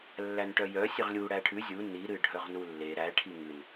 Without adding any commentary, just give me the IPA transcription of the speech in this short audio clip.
lː æ n ʈ œ j œ sʲ ɨ ʁ lʲ u ɽ æ ʈʰ ʉ zʲ u n i ɾ ɨ ɖʱ œ ʁ n u lː e ɾ æ ʈʰ i ŋ ɨ n

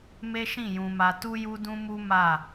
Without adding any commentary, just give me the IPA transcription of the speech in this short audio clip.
m e˦ ʃ ĩ˦˨ j ũ˧ m a˧ t u˦ j u˦ d ũ˦ m u˦ m a˦˨

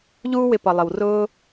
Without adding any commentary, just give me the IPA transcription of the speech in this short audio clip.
ʎ uː˦ w ɪ˧ p ʌ˨ lˠ ɪ˨ w r ʊː˦

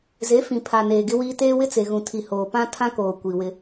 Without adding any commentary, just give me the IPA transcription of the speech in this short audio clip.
z e˨˦ f ĩ˨ pʰ a˨ n eː˨ ɡ ɪ˦ w iː˦ t eː˦ w ɪ˦ t͡s e˨ ɣ ũ˨ tʰ i˨ h oː˨ p ã˦ tʰ ã˦ k oː˨ kʷ i˨ w ɪ˦

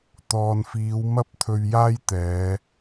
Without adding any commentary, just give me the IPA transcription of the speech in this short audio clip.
t̪ ɔː˨ n f iː˨˧ w m ɐ˥ p̚ t̪ʰ ɵ˧ ɥ j aː˥ j t̪ ɛː˨˧

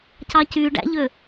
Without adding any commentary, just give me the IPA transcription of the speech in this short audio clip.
c ɑ c y ɖ æ̰ ʎ ø

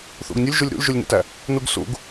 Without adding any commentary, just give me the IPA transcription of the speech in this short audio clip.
θ ṵ ɡ nʲ o lʲ ʒ u lʲ ɾ ṵ lʲ ʒ u lʲ n ḛ t æ | n u ɡ s ṵ ɡ

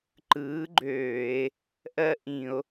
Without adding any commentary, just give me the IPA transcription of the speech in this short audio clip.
ǃ ɯː˨˥ ɡ͡ǃ øː˧˩˧ e̯ | ʔ ɜ˥ ʔ ĩ˧˩˧ o̯

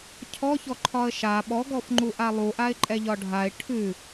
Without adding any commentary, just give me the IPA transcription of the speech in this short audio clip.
cʰ ɔ ç ɔ ǃʰ ɒ ə̯ ʃ a ɓ ɔ ɡ ɔ f ŋ͡ǃ u ʔ a lˠ u ʔ a ɪ̯ ǃʼ ɛ ʎ ɒ ɖʱ a ɪ̯ ʈʰ ʉ

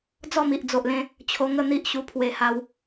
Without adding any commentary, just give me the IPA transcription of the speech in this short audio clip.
d͡z ɔ˥˧ m i˨ ʔ d͡z o˨ ʔ l ẽ˧ | t͡ɕʰ o˧ ŋ ə˥˧ n̪ i˦ ʔ ɕ u˧ pʰ w e˧ h a˧ w

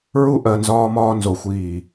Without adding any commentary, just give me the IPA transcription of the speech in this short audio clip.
ɹ u˦ ʔ ɜ˨ n z ɒː˦ m ɒː˦ n z o˨ xʷ iː˦˨

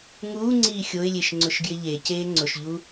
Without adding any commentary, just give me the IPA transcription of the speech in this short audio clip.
ŋ uː ŋ͡ǀ iː xʲ o ɪ̯ lʲ e ʃ ŋ͡ǀ ʊ ʃ ɡ j ɪ ʎ e c eː ŋ͡ǀ ʊ ʃ ʎ u

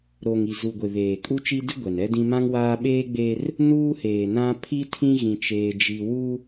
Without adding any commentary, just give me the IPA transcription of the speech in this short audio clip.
ɾ o˨ ŋ i˨ z u˨ ɡʷ e˨ β eː˨ kʼ u˦ t͡ʃ i˦ d ɪ˦ ɡʷ ɛ˨ n ɛ˦ d ĩ˦ m ã˦ ŋ w aː˦ ɓ eː˦ ɡ͡b e˦ r | n uː˦ h eː˨ n ã˦ pʰ i˦ tʰ ĩ˦ ɣ ĩ˦ t͡ʃ eː˦ d͡ʒ i˦ w u˦

